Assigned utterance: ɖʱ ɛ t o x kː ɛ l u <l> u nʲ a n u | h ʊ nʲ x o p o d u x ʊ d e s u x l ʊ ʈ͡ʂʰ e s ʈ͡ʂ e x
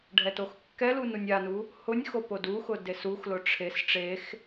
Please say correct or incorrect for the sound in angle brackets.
incorrect: n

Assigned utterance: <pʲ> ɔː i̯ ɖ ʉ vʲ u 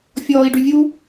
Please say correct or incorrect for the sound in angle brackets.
incorrect: fʲ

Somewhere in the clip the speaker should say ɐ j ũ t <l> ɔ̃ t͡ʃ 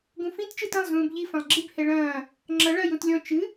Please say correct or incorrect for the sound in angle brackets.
incorrect: lʲ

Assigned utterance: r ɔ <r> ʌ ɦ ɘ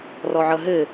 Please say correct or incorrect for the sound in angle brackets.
incorrect: ʕ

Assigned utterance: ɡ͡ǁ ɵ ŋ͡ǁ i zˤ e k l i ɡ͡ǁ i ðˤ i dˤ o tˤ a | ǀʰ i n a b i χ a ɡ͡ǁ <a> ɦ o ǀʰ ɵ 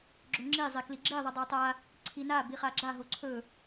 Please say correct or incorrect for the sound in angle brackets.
correct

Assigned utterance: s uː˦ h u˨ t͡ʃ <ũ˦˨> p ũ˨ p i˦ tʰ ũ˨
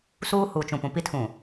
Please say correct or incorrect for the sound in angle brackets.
incorrect: ũ˨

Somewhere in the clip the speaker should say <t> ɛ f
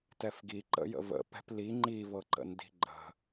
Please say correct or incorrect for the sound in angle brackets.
correct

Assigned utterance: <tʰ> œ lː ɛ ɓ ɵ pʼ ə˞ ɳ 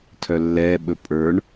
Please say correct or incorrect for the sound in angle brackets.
correct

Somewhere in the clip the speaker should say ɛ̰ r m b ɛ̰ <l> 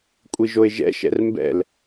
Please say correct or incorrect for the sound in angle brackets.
correct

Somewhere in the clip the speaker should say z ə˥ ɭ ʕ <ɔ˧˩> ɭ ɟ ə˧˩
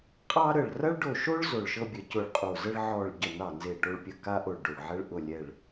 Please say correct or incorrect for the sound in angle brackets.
correct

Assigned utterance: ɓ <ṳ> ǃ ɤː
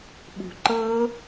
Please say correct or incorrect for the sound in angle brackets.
correct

